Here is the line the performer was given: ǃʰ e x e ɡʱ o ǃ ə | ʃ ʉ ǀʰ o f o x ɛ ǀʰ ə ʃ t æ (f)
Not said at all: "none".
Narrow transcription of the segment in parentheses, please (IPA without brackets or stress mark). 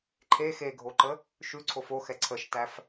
f